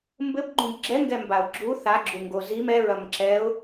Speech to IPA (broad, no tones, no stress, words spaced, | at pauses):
mbɘbɡ͡ǃũb ɡ͡ǁɛŋɡɛmbaʊ̯ ɡ͡ǁu θaɡ͡ǁuŋɡo zim ɛɹɐm ǁɛʊ̯